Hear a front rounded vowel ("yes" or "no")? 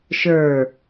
no